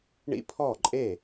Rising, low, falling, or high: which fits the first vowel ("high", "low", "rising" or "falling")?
high